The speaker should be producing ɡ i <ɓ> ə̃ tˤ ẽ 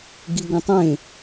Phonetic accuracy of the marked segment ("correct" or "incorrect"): incorrect